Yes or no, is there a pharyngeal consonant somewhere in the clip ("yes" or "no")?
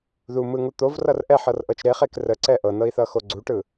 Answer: yes